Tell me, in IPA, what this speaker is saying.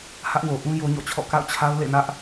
h ä˦ ʔ w o˨ ʔ ũ˦ j o˦ ɲ ɔ̰˦˨ t͡ɕʰ ɔ̰˦˨ k a̰˦˨ ʊ̯ t͡ɕʰ a˦ ʊ̯ l ḛ˦˨ n ä˦ ʔ

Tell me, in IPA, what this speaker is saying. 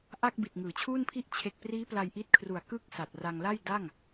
ʔ a˥˩ k̚ b i˨˩ t̚ ŋ ɯː˩˦ t͡ɕʰ uː˥˩ n pʰ i˥˩ ʔ t͡ɕʰ e˨˩ k̚ p r iː˦˥ p l a˧ j ʔ i˦˥ t̚ kʰ r u˨˩ a̯ k ɯ˦˥ k̚ s a˨˩ t̚ r a˧ ŋ l a˥˩ j d a˥˩ ŋ

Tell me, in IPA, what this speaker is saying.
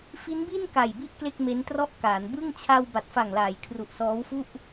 f i˦˥ n b i˥˩ n k a˨˩ j b i˥˩ ʔ k l e˥˩ k̚ m e˦˥ n t r ɔ˥˩ ʔ k aː˩˦ n b ɯ˥˩ ŋ t͡ɕʰ a˧ w b a˨˩ t̚ f a˨˩ ŋ l aː˩˦ j kʰ r u˨˩ ʔ s ɔː˦˥ w f u˥˩ ʔ

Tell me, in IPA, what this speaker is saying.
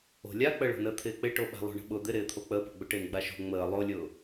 o̤ lʲ a k͡p ə ɭ o̤ n əː t̪ʰ ɪː k͡p ɪ ʈ o ɓ a̤ lˠ o̤ ɳ ə̤ ɓ ʊ d̪ ɪ ɾ ɪː t̪ʰ o k͡p əː p o̤ ɡ͡b ʊ ʈ ɪː n ɡ͡b a ʃ o̤ ŋ͡m əː lˠ o lʲ ʊː

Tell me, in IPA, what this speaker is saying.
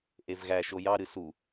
ʔ e v ɣ æ ʃ o j ɑ ɾ ɨ s u

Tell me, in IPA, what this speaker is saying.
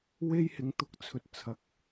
w e˥ j h ɪ˨˧ ŋ t̪ ʊ˨˥ k̚ t͡sʰ ɵ˨ t̚ t͡sʰ ɐ˨˥ k̚

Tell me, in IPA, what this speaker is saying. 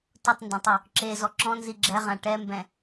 t ʊ tˤ n d ɛ̃ tˤ o | ǁ e z ɔ ǁ ɔ̃ n z i ɡ͡ǁ ɛ ʁ ã ʈ ɛ m b ɛ̃

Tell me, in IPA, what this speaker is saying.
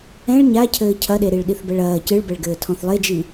ɛ̃ ɭ ɲ a cʰ ɘː cʰ ɐ ɗ e ɾ i ɭ ɗ i θ b ɛ ɭ ɐː c ɨ ɭ b ɛ ɭ ɡ ɘː tʰ ɔ̃ θ lˠ e d͡ʒ i

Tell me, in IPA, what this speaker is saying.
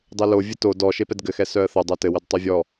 dˤ e l o vʲ ɘ t o d ɔ ʃ e p ɛ d ɡ ɘ x ɛ s œ ə̯ θ œ dˤ œ t ɘ w ɘ d tˤ œ vʲ ɔ

